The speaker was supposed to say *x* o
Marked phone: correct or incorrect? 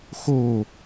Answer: correct